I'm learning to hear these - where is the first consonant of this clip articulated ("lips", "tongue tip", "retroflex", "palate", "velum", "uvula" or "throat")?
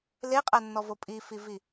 tongue tip